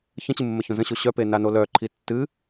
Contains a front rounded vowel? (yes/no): yes